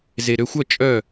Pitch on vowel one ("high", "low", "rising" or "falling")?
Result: low